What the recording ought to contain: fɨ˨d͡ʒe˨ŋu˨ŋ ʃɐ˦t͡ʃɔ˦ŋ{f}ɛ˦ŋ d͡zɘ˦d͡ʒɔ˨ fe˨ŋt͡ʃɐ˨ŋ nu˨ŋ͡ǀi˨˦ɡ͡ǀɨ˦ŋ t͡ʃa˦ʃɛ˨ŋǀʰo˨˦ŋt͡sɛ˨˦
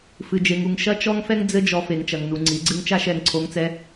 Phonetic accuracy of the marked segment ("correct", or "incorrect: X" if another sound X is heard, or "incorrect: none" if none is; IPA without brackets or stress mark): correct